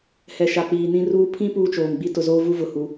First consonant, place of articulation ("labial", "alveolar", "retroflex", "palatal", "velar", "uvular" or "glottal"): glottal